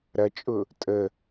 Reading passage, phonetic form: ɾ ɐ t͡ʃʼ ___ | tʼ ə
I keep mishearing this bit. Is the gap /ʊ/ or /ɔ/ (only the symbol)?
ʊ